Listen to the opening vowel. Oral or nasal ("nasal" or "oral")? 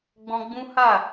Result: nasal